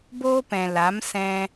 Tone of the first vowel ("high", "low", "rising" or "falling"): high